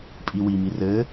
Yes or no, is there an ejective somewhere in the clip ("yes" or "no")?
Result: yes